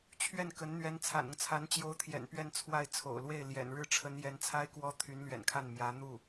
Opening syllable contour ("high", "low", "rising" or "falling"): falling